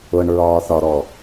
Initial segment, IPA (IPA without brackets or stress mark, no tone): ʊ